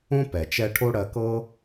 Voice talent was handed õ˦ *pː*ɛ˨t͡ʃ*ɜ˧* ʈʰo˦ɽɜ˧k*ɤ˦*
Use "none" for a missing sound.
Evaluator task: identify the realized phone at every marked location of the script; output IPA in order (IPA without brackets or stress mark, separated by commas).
p, ɛ˧, ɤ˦